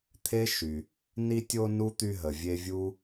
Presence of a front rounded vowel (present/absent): present